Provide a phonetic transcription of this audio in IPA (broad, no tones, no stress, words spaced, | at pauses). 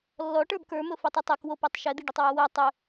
lːɔʈə˞b kə˞mɵ fitˤɵtˤɛk wopɛtˤ ʃɛd̪iɖɵtˤ wowɜ tˤɵ